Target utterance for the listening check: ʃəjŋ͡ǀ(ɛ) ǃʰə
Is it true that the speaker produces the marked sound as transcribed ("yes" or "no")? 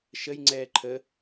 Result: no